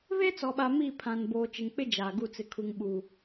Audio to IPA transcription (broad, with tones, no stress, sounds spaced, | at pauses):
β e˦ t͡s ɔ˨ ɓ a˨ m i˦˨ pʰ ã˨ n b oː˨ t͡ʃ ɪ˨ ŋ k͡p ɪ˦ d͡ʒ aː˨ ɡ u˦˨ t͡s ɪ˨ kʰ u˨ ŋ ɓ uː˨